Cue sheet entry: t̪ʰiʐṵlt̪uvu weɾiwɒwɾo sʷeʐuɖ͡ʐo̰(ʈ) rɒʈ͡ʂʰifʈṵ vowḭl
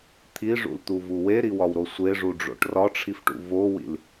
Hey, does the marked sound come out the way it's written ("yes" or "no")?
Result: yes